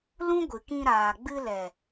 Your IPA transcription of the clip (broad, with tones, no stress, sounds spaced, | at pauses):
l ũ˦ ɡʷ ɨ˨ k ĩ˧ ɾ aː˨ ɡ͡b ɨ˧ l ɛ˨